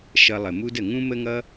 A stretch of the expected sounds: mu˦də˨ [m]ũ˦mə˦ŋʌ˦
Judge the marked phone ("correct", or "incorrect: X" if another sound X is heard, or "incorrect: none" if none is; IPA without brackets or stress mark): incorrect: ŋ